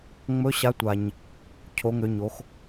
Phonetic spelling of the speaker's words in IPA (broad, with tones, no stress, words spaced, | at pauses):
ŋ͡mɵ˨˥ɕa˨˥tʷa˨˩ɲ | cʰo˩˧ŋø˩˧ɲo˩˧x